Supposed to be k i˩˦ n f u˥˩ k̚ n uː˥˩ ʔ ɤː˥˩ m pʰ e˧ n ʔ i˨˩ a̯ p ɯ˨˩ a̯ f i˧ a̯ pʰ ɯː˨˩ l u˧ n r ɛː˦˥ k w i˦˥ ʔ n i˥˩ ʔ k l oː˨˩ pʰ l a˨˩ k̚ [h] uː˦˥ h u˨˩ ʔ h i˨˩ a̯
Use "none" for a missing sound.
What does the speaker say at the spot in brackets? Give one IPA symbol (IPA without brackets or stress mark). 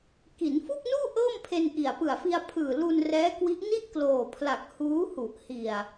h